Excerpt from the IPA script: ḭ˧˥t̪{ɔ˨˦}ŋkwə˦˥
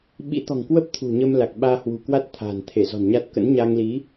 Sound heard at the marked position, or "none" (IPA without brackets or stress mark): ɔ̤˨˩